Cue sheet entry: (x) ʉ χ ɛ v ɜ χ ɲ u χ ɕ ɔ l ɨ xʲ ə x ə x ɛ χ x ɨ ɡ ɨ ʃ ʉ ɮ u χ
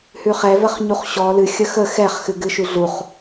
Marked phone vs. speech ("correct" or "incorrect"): incorrect